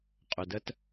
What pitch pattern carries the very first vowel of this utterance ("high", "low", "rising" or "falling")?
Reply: low